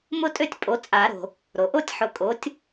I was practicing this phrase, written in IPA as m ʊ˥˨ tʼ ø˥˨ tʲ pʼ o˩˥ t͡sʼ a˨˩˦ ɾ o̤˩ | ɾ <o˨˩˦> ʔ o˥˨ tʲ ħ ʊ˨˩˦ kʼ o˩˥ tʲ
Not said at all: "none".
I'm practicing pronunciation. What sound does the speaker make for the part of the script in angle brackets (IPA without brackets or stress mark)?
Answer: o˩